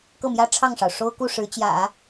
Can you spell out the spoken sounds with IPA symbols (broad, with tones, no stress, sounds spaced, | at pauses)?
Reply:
k ɤ˥˩ m j ä˥ ʈ͡ʂʰ ɑ˥˩ ŋ ʂ ɑ˩ ʊ̯ ʂ o˥ ʊ̯ k u˥˩ ʂ ɻ̩˧˥ t͡ɕ j ä̰˨˩˦